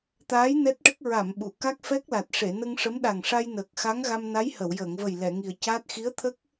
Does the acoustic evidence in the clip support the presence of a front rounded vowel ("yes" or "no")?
no